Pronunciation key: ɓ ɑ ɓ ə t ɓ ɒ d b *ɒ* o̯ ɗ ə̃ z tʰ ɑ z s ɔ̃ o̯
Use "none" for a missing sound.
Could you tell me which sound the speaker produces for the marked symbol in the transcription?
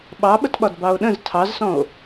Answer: ɑ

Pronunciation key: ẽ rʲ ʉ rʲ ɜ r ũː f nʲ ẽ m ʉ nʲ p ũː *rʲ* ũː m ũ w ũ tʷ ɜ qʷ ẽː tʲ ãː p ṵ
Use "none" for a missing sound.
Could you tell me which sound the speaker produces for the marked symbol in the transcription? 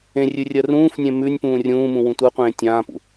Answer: rʲ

